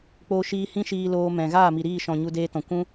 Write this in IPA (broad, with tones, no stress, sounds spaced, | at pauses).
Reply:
k͡p oː˧ ʃ iː˧ h ĩ˦ ʃ iː˧ l oː˧ m ɛ̃˨ ɣ aː˦˨ m i˨ ɾ iː˦˨ ʃ ɔ̃˨ ɲ u˧ d eː˧ t ɔ̃˨ kʷ ũ˦